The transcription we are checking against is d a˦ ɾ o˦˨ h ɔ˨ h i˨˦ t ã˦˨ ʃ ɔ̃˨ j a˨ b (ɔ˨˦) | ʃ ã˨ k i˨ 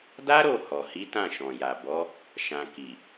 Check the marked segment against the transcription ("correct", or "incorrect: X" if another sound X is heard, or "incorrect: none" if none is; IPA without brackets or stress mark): correct